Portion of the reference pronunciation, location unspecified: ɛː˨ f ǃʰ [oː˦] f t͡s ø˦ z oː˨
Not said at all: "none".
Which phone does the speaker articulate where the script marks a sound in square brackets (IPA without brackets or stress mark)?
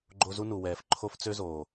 o˦